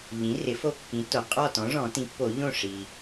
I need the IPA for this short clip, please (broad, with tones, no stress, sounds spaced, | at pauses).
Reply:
ʎ ĩ˩˥ r ɪ˩˥ f o˦ kː ĩ˩˥ tː o˩ qʼ ɔ˥˨ t ɔ̃˩˥ ʐ ɔ̃˨˩˦ t ĩ˩˥ pː o˨˩˦ ʎ õ˥˨ ʂ i˩